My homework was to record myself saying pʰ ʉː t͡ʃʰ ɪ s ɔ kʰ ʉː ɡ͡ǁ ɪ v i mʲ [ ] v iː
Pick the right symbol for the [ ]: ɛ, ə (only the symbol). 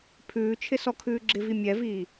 ɛ